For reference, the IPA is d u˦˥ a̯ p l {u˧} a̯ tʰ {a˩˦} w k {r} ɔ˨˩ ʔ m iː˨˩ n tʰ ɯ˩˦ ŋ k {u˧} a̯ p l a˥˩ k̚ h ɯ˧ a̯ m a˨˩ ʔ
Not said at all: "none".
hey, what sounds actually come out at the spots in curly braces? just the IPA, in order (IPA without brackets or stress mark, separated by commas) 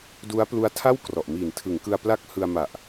u˦˥, a˥˩, r, ɯ˧